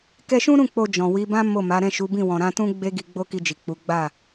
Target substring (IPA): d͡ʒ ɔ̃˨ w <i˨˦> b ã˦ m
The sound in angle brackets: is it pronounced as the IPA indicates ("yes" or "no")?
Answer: yes